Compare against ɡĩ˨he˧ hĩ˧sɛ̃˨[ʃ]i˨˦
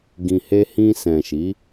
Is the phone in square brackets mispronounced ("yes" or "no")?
no